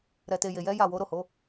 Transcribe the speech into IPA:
ɾ ɛ˨ t e˨ j e˨ j ɛ˨˦ j a˦˨ w o˨˦ ɾ o˦˨ h o˨˦

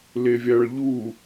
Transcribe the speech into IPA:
l e vʲ a ɭ ʎ u

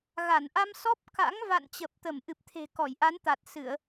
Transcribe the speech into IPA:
ɣ a˧˩ n ʔ a˧ m s ɔ˦˥ p̚ k a̰˧˥ ŋ v a̰˧˨ n t͡ɕ ə˨˩ p̚ t̪ ə˧˩ m ʔ ɨ˨˩ p̚ t̪ʰ e̤˨˩ k ɔ˧˩ j ʔ a˨˦ n t̪ a˨˩ t̚ s ɨ˧˩˨ ə̯

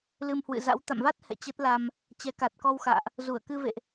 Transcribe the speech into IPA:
l ɨ˧ m h w ɨ̰˧˨ z a̰˧˥ w t̪ a̰˧˨ m v a˦˥ t̚ h ɛ̰˧˨ t͡ɕ ə˦˥ t̚ l a˧ m | t͡ɕ ɛ˨˦ k a˨˩ t̚ k ɔ˧ w x a̰ː˧˨ ʔ | z u˧˩ ə̯ k ɨ˧ v ḛ˧˨ ʔ

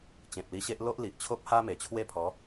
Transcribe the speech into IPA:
t͡ɕ ẽ˨ p̚ l i˧ ɕ e˦ ʔ l o˦ ʔ l i˨ ʔ t͡ɕʰ o˦ p̚ h a˦ m e˨˩ t͡ɕʰ w e˥˧ pʰ ɔ˨˦

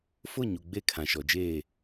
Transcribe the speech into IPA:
f ʊ˦˨ ɲ u˨ ɡ͡b e˦˨ kʰ ã˨ ʃ ɔ˨ d͡ʒ eː˦˨

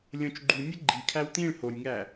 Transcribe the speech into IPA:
lʲ õ t͡ʃ ɡ͡ǃ u nʲ ə ɡ͡ǃ i kʰ æ w t̪ ĩ ɭ h o nʲ ŋ æ

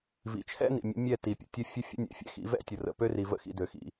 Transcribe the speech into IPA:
v ḭ˨ t͡ʃʰ ɛ̰˦ n ḭ˨ mʲ ə̰˨˦ mʲ ɛ˦˨ t i˨ pʲ ə̰˨ tʲ ə˦˨ fʲ ə˦ fʲ ə̰˦ nʲ ɛ̰˨ fʲ ɛ̰˦ x ḭ˨˦ v ɛ̰˦ tʲ ə˨ r ə̰˨ p ø˦ r i˨ v ə̰˦ x ḭ˨ d ø˨ x ḭ˨

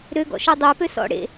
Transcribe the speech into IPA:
ɾ ø ɡ ɔ̰ ʃ e dˤ ɛ p ø s ɔ̰ ɽ ḛ

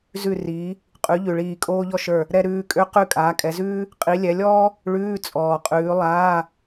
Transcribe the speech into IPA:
z ʉ˦˨ r iː˨˦ | qʼ ʉ˨˦ ʎ ʉ˨ ɭ iː˦˨ kʼ oː˥ ʎ ɔ˥ ʃ ə˞˦˨ | ɾ ɛ˥ ɾ ʉː˧˥˧ kʼ ø˥ q ʉ˦˨ kʼ aː˨˦ kʼ ɛ˨˦ z ʉː˥ | qʼ i˨˦ lʲ ɛ˨˦ lʲ ɔː˥ | ɭ ʉː˧˥˧ t͡sʼ ɔː˨ qʼ ʉː˨˦ lˠ aː˧˥˧

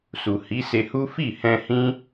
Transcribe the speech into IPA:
s u˨ h i˨˦ s e˧ h u˦ f i˦˨ h ɛ̃˧ h ĩ˦

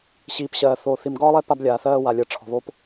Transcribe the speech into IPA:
ɕ iː˨ p ɕ ɜː˨ θ oː˨ θ i˨ m ɡ ɒː˦ lˠ ɛ˦ p a˦ b lʲ aː˨ θ ɜː˦ w a˨ lʲ əː˨ ʈ͡ʂʰ ɔ̤˨ β o˦ p

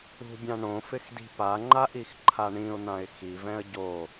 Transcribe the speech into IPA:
ṳ bʲ ã ɳ õ f ɪ x d i̤ p a ŋ͡ǃ a ʔ i x ǃʰ a ɳ ĩ ʊ̯ n̪ ã ɪ̯ x i v ɛ̃ ə̯ ɟ o

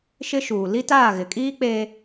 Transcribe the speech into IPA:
ʃ ɪ˦ ʃ uː˨ l i˦ t aː˦˨ ɣ ɪ˨ kʼ iː˦ k͡p eː˦

